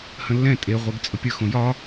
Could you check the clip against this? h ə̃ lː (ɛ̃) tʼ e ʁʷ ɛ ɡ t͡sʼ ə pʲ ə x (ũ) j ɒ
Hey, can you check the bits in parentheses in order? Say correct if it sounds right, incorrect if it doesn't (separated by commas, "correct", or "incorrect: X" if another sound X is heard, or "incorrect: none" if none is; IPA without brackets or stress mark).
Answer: correct, incorrect: õ